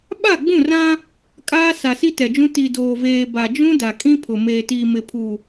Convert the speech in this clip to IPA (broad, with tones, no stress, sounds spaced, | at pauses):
ɓ a˦˨ ɡ͡b ũ˦˨ r ã˦ | kʼ aː˦ s a˨ s i˦ t ɛ˨ d͡ʒ ũ˦ t i˨ d oː˨ v eː˨ b a˨ d͡ʒ ũ˦ d a˨ kʼ ĩ˦ pʰ ʊ˨ m eː˨ t iː˨ m ɪ˨ pʰ u˨